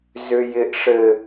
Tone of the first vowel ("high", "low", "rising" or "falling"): high